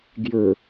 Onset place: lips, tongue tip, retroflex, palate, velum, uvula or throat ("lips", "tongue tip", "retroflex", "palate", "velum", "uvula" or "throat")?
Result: velum